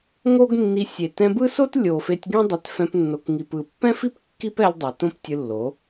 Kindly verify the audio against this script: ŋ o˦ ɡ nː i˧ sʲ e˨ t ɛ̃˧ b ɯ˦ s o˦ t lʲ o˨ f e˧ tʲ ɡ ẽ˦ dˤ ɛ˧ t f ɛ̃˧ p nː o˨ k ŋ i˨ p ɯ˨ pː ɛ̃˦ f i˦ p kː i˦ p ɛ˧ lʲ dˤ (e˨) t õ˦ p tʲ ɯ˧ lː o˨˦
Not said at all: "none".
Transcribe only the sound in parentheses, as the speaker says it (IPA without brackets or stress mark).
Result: e˨